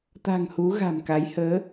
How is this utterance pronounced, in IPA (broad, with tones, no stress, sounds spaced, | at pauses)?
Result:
t̪ a̤˨˩ ŋ h u˨˦ ɣ a̤˨˩ m k a˨˦ j h əː˨˦